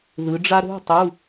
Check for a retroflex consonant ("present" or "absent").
present